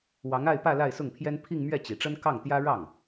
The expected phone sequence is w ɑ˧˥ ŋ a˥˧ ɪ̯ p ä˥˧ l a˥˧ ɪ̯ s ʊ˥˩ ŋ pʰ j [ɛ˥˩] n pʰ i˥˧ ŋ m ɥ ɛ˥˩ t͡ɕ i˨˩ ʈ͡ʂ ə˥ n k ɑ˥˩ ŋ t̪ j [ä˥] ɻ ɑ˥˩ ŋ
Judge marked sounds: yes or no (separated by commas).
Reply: no, yes